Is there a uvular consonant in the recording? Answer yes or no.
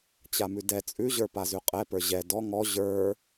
yes